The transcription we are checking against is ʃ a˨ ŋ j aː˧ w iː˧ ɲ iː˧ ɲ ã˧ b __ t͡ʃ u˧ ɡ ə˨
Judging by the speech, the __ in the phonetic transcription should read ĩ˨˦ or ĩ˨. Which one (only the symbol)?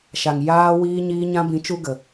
ĩ˨˦